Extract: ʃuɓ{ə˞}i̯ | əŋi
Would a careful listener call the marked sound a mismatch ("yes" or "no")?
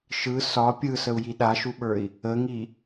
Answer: no